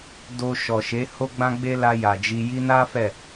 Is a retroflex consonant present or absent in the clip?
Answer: absent